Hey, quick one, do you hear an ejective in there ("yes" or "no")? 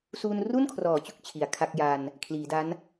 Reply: no